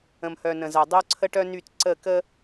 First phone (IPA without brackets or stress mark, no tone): ə̃